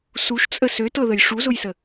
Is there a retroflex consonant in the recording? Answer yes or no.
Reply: yes